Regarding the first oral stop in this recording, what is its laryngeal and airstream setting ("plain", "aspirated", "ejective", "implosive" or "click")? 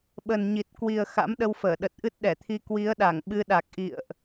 implosive